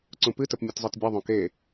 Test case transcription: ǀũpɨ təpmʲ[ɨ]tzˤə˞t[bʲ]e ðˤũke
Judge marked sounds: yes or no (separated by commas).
no, yes